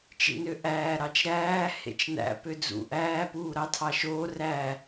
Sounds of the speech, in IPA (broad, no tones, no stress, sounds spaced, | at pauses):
t͡ʃ ḭ n ø ʔ æː ɾ ɑ t͡ʃ ɾ æː h ḛ t͡ʃ n æ̰ p ø d͡z ṵ ʔ æː p uː ɾ ɑ tʰ ɑ ʃ oː r æ